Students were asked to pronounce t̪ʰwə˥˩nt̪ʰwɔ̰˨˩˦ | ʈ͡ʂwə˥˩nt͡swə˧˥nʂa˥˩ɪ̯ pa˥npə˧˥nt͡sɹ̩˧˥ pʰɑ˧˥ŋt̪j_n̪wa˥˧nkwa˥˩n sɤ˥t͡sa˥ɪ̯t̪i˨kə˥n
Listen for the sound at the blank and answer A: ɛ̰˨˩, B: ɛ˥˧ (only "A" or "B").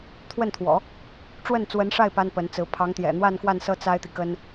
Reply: A